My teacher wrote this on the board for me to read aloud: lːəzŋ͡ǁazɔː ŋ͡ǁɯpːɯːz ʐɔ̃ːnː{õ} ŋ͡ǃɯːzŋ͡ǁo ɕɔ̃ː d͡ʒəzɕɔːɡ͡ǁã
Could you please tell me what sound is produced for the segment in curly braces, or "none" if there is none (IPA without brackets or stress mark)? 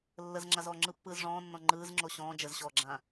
ɔ̃